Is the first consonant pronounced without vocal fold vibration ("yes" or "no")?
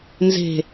no